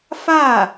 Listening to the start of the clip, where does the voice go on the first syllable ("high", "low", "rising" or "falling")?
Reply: falling